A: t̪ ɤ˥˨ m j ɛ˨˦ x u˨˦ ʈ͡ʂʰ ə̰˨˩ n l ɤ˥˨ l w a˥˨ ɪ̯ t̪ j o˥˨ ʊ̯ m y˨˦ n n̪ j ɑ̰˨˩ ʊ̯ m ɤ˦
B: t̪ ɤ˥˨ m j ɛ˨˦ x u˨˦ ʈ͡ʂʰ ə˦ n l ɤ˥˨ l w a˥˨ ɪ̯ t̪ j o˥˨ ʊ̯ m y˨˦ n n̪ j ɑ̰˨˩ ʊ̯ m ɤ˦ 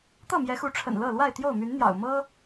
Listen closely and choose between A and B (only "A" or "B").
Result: A